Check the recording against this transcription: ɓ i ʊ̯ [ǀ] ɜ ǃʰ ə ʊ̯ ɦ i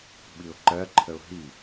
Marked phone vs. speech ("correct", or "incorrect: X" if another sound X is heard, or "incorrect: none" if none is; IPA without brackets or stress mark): incorrect: ǃ